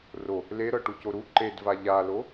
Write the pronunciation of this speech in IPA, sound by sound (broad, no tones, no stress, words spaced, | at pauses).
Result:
ro | leɾɤ ʈucoɾu ǃedva ʎalo